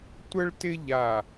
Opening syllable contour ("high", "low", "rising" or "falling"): high